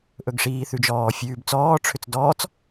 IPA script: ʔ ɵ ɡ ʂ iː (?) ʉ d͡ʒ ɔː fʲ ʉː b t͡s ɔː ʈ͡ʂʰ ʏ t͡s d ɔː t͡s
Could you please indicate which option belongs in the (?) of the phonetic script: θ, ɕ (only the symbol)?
θ